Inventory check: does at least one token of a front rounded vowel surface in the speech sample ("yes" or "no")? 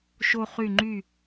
yes